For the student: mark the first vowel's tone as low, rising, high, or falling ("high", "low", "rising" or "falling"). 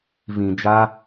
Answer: low